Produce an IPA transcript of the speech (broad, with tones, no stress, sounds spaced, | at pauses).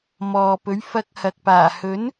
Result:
m ɔː˨ p ɵ˨˥ ɥ f ɐ˧ k̚ h ɐ˨ k̚ p aː˨˩ h ɵ˨˥ n